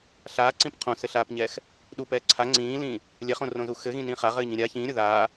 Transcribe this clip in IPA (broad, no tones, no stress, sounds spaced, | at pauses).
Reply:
ɬ aː ǀ ĩ p qʰ õ s ɘ ɬ aː p ɲ ɛː x | ɗ u p ɛː ǀʰ a ŋ͡ǀ ĩː l ĩː | lʲ ɛ χ õ r õ z u x ɘ ɣ ĩ n ĩː χ a ʁ ɘː ɲ ĩ ɾʲ a ç ĩː ɾʲ o ð aː